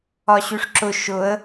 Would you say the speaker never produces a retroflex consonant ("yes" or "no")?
no